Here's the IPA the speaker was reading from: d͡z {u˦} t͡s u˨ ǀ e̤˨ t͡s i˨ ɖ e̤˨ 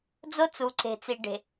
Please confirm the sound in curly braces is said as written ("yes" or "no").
no